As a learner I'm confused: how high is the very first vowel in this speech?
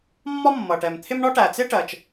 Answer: low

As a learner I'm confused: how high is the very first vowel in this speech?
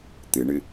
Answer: high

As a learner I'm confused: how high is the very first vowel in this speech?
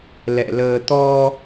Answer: mid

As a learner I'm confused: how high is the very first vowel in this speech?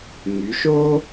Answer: high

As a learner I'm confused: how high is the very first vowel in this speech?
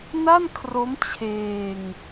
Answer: low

